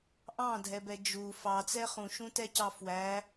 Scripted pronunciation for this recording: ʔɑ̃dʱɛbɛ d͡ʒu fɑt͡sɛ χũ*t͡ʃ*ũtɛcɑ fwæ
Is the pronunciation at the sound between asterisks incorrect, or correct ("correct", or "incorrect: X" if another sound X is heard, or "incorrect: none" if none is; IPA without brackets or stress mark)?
incorrect: ʃ